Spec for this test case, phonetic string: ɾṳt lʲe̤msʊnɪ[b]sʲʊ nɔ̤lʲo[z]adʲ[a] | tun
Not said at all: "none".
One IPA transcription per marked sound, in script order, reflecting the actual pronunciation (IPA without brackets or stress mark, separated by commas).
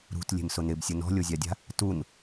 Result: b, zʲ, a̤